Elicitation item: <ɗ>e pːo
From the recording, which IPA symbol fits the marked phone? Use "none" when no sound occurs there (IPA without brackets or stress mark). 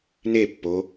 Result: n